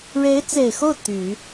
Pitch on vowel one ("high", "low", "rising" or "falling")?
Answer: rising